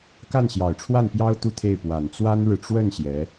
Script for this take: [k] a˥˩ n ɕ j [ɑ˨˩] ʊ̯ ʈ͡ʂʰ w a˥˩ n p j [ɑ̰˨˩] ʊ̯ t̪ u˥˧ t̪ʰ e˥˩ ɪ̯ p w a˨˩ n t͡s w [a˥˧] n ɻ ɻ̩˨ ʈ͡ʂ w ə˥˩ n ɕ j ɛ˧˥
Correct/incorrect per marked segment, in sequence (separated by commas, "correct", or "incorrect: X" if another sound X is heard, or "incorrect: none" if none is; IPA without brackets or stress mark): correct, correct, incorrect: ɑ˥, incorrect: a˥